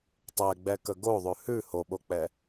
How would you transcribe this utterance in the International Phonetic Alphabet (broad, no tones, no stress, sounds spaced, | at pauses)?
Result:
tˤ ɛ ɡ͡b ɛ k ə ɡ o ðˤ ʉ h ʉ h o ɓ o k͡p ɛ